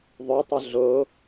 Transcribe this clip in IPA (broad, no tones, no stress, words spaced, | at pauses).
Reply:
ðˤʉtˤʏ ɮo